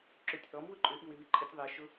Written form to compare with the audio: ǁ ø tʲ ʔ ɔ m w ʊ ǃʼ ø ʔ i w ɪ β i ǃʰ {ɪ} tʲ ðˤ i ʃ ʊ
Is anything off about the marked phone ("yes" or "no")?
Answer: no